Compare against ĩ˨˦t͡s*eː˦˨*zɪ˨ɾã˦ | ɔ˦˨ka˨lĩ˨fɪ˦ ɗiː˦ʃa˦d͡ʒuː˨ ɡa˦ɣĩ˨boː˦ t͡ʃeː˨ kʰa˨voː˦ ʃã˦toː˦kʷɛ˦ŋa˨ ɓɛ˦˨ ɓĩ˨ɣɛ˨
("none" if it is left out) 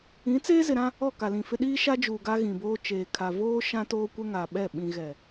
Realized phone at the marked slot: eː˦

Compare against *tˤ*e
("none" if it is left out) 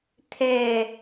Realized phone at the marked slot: t̪ʰ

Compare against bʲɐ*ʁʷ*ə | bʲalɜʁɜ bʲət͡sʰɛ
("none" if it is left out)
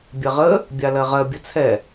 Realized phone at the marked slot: ʁ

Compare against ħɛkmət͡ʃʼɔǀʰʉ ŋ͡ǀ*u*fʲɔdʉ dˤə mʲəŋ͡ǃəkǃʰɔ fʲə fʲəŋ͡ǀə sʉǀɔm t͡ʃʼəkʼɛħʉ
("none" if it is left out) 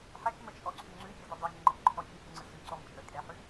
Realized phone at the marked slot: ʉ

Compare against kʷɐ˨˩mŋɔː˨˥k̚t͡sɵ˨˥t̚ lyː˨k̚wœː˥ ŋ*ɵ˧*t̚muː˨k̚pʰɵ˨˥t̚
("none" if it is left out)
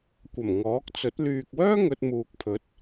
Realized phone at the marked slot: ɵ˧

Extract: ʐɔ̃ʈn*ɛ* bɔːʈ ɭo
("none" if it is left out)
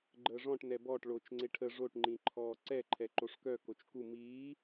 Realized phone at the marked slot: ɛ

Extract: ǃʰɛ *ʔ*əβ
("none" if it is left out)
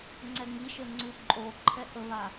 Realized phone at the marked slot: ʔ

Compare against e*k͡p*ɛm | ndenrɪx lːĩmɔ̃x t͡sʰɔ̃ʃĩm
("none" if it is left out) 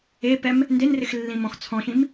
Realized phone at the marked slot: p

